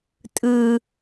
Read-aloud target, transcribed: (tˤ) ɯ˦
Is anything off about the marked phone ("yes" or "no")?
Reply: yes